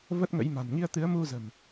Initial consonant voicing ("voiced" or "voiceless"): voiced